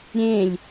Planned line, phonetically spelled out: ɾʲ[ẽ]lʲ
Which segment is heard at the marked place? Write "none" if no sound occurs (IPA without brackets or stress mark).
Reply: ẽ